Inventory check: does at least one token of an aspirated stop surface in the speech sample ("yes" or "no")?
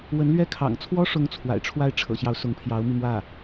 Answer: yes